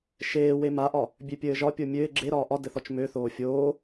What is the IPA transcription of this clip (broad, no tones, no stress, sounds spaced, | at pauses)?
ʃ eː w e m a ʔ ɒ | bʲ ø pʲ ɘː ʒ ɒ pʲ o mʲ ø ɪ̯ ɡ͡ǁ e ɾ ɒː ʔ ɒ d ɘ θ ɔ t͡ʃ m ø θ oː fʲ oː